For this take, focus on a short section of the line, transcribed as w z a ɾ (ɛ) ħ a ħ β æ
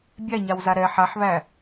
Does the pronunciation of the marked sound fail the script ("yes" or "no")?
no